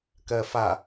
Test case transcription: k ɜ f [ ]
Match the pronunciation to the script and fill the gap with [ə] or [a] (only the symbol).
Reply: a